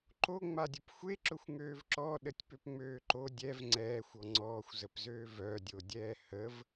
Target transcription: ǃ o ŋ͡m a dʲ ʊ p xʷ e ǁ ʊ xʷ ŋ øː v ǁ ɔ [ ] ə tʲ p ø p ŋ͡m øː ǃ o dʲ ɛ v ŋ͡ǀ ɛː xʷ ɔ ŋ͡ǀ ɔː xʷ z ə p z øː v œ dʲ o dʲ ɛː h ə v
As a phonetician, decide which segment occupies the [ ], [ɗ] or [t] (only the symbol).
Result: ɗ